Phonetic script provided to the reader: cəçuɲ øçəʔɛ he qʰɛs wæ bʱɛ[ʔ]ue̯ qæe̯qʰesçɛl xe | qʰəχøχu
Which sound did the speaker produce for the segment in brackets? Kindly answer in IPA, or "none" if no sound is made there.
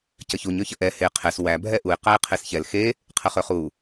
ʔ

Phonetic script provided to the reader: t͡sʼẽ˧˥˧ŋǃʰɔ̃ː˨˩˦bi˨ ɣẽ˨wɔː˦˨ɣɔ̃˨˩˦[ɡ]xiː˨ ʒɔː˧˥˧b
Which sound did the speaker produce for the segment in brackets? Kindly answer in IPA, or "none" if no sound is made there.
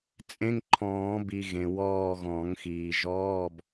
ŋ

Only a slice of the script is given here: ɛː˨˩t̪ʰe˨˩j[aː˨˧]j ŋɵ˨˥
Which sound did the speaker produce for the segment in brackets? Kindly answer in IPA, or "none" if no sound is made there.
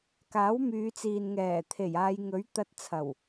aː˨˧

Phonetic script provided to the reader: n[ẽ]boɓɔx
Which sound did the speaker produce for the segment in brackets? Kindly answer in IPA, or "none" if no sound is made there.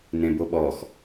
ẽ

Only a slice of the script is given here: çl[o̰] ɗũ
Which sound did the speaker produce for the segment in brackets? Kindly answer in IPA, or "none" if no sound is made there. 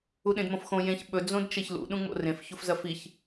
ṵ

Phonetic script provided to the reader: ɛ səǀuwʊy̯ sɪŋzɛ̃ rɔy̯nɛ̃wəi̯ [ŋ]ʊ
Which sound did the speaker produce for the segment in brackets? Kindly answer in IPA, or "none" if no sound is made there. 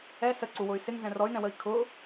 kʰ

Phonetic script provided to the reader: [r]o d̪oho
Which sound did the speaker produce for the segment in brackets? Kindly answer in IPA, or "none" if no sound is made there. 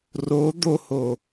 r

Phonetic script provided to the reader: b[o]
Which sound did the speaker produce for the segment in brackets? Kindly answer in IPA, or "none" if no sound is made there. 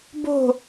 o̤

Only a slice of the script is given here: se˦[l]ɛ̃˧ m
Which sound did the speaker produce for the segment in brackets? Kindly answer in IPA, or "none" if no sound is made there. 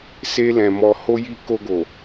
l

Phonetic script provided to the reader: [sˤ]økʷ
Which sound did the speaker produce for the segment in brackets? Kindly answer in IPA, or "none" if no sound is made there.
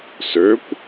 s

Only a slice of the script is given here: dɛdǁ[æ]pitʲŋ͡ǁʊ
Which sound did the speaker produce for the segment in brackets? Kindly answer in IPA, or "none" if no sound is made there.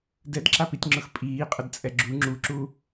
a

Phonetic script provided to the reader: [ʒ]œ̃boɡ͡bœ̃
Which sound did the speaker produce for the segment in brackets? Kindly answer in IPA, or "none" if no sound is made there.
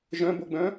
ʒ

